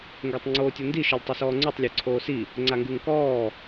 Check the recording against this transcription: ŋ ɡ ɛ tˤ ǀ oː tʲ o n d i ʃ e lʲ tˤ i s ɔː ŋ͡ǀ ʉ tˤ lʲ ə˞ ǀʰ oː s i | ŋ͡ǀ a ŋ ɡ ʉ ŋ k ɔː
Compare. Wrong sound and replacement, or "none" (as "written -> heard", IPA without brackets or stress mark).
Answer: ǀ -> ŋ͡ǀ